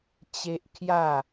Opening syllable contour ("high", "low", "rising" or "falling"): high